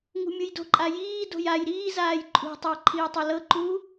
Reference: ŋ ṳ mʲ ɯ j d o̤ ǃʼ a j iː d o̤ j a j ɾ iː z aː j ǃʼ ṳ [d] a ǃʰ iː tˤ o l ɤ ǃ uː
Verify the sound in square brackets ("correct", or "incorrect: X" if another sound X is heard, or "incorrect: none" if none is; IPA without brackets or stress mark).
incorrect: tˤ